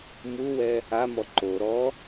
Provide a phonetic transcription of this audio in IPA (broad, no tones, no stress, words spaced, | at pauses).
muwɛ | amɔ ǃo ɾɔ